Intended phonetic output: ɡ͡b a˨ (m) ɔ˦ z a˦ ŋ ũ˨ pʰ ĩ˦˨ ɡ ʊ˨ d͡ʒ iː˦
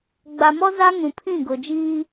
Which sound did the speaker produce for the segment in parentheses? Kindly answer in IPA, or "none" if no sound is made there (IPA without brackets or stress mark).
m